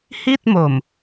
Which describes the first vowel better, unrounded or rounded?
unrounded